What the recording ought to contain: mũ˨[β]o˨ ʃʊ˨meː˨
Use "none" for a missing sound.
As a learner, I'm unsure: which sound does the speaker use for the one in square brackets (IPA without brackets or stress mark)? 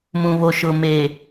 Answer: β